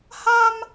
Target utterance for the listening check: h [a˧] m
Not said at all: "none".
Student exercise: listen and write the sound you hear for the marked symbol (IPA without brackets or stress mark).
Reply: a˧